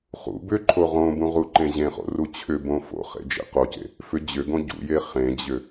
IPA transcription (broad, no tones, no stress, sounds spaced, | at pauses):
χ ṵ b ʏ ǃʰ o ʁ õ b ũ ʁ u ǃ ẽ ʑ ẽ χ o̰ r u t͡ɕʰ ʏ b õ f o̰ χ ḛ d͡ʒ ḛ q o c ḛ | f ʏ d͡ʑ ʏ ɡ õ ɟ ṵ j e χ ẽ d͡ʑ ʏ